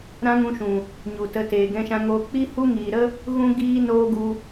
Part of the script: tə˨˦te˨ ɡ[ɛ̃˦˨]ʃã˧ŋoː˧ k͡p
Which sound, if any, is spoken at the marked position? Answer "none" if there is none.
ɛ̃˧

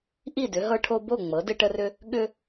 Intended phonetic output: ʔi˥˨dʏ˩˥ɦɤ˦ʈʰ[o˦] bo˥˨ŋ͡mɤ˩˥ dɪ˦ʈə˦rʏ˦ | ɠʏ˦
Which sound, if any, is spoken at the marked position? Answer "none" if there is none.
o˦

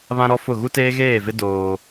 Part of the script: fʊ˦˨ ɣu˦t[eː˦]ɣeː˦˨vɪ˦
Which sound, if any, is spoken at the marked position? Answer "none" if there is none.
eː˦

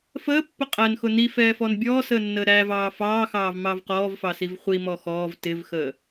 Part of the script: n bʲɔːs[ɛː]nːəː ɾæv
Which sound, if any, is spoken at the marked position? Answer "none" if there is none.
əː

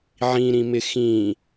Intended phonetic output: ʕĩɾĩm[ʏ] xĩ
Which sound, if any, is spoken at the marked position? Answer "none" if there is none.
ɪ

